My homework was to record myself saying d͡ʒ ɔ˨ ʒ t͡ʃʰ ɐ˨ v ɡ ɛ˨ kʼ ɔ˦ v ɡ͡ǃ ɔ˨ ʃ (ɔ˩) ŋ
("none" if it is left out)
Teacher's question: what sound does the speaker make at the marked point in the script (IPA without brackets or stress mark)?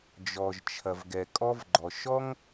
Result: ɔ˥